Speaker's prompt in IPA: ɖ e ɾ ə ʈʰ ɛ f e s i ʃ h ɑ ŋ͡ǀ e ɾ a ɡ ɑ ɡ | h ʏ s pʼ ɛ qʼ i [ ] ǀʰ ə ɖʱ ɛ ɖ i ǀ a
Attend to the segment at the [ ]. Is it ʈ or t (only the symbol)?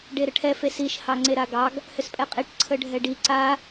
ʈ